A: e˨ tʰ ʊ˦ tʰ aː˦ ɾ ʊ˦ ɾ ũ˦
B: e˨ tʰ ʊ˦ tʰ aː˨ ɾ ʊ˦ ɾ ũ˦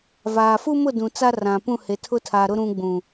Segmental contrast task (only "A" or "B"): B